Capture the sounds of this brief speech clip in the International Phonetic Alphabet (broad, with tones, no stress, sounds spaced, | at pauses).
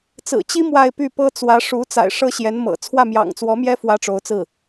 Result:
t͡s ɹ̩˨˩ t͡ɕ i˥ m w a˥˧ ɪ̯ p y˥˩ p ɤ˥ t͡s w ä˧˥ ʂ u˧˥ t͡s a̰˨˩ ɪ̯ ʂ ɤ˥ ɕ j ɛ˧˥ n m ɤ̰˨˩ t͡sʰ w ä˥˩ m j ɑ̰˨˩ ŋ t͡s w ɔ˧˥ m j ɛ˥ f w ä˥ ʈ͡ʂ o˧˥ ʊ̯ t͡s ɹ̩˥˩